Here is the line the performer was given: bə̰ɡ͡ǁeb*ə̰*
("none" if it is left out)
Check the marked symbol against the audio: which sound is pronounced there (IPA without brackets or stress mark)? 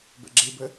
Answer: ə